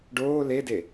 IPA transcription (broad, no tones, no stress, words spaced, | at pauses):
ɖoː lede